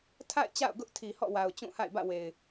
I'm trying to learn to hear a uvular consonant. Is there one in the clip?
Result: no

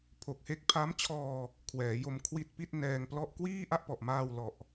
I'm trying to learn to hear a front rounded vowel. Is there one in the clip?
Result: no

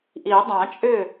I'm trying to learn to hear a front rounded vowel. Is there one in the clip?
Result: yes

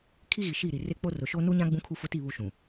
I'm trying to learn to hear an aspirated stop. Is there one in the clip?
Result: yes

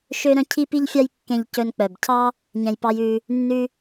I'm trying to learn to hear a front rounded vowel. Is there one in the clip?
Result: yes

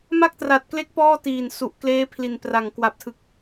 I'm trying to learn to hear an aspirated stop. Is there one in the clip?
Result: yes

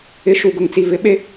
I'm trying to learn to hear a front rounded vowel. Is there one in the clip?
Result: no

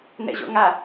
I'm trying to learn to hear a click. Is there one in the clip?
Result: no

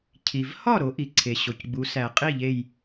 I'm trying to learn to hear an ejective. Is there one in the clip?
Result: yes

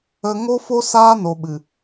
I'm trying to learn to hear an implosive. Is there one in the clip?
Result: yes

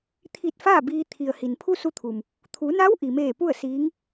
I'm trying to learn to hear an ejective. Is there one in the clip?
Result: no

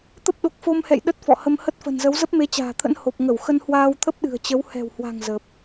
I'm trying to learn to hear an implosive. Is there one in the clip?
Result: yes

